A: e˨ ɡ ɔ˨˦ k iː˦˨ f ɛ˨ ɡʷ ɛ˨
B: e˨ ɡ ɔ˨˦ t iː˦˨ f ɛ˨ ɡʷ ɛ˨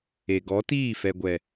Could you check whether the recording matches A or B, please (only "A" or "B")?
B